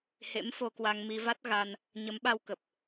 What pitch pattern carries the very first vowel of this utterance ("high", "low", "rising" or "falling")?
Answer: rising